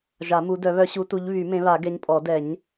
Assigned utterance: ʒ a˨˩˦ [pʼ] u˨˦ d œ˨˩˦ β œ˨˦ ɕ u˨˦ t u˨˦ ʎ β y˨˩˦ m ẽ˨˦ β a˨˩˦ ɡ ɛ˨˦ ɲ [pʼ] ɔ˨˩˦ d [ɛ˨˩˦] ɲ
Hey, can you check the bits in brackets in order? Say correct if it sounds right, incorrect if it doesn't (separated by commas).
incorrect, correct, correct